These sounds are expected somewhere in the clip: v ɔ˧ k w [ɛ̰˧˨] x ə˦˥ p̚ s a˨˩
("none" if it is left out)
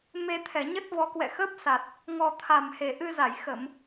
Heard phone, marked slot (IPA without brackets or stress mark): ɛ̰˧˨